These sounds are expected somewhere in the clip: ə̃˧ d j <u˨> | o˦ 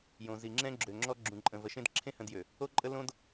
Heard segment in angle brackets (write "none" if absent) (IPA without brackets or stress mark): ø˨